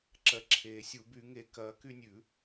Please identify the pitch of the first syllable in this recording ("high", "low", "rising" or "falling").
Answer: low